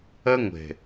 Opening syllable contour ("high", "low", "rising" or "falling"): high